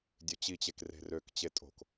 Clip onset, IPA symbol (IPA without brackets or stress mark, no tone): dʲ